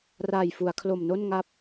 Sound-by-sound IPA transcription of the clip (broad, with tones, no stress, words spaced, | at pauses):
raː˨˩jfu˩˦a̯kʰlo˨˩mno˥˩n ŋa˥˩p̚